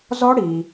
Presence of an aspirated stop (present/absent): absent